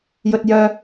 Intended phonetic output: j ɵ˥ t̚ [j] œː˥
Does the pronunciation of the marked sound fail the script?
no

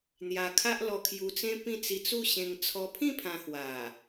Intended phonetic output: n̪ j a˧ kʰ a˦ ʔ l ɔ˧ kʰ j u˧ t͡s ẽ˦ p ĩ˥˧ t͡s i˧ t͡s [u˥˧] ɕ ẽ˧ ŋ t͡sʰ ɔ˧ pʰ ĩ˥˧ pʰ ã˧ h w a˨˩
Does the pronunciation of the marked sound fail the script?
no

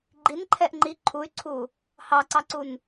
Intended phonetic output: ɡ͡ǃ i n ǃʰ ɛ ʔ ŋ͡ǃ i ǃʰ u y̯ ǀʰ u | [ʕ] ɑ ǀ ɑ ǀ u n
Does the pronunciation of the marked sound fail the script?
yes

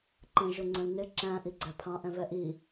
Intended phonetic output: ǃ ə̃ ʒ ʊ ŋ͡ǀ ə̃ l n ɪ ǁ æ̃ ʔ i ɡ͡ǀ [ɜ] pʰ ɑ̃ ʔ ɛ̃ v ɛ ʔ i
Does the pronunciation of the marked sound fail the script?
yes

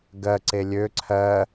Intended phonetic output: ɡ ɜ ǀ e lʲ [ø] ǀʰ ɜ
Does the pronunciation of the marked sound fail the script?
no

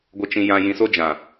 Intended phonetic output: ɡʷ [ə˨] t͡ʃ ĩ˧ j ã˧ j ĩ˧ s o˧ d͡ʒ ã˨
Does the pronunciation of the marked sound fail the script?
yes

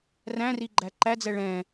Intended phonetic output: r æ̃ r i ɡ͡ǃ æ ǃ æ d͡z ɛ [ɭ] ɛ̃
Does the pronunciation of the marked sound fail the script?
no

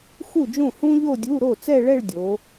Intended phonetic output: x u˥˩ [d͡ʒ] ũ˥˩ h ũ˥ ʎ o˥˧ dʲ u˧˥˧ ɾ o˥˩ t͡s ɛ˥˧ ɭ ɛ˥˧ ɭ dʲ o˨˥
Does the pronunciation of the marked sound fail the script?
no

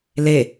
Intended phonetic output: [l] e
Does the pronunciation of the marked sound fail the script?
no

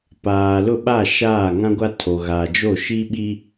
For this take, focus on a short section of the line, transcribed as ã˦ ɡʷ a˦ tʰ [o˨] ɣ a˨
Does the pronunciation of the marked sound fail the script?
no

